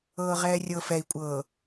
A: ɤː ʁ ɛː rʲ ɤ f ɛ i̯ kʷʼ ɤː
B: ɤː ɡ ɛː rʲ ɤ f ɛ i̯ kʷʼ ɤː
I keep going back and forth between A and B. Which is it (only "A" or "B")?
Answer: A